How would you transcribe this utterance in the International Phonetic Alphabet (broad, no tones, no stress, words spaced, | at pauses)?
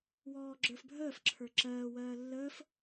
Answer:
wɔːɡ͡ǁə˞fbʱəːf ǁʰə˞ǁɜː wɜːlːəːf